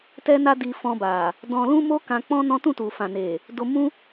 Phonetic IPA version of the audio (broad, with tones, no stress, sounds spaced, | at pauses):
t ɛ˦ n a˦ d i˧ f ɔ̃˧ b a˨ | d ɔ̃˧ l ũ˦ m o˦ k ã˧ k͡p ɔ̃˦ n ɔ̃˦ t ũ˦˨ t u˨ f ã˨ n e˨ | d o˧ m ũ˦